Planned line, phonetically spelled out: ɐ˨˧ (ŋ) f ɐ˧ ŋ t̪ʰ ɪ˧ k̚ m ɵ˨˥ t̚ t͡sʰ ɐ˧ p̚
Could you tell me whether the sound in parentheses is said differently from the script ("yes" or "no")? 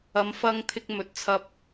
yes